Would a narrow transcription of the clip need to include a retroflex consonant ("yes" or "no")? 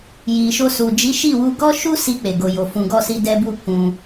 no